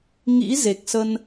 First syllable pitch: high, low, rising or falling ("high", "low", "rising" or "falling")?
rising